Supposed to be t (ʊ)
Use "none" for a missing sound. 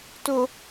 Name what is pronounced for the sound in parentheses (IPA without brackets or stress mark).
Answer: ʊ